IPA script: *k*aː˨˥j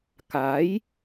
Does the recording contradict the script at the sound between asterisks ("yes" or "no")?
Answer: no